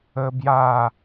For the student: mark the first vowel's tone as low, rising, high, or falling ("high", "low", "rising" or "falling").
high